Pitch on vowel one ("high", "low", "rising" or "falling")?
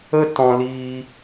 high